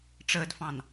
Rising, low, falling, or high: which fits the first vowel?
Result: low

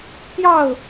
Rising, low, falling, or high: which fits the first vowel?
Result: falling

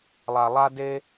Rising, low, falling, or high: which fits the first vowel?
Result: low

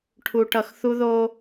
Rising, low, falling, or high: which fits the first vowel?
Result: low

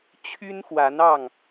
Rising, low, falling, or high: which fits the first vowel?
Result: high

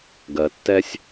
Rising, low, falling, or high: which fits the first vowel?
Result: low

